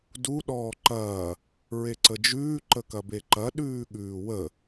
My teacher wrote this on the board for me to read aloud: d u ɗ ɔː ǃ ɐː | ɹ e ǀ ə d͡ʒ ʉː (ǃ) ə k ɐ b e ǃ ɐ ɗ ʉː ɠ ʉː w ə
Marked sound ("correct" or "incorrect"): correct